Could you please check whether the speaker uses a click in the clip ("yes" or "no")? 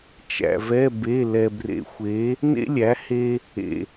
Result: no